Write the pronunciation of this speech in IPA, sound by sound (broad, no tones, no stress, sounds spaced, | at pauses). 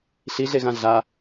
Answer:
ɬ i ɮ e ɣ ã ɮ a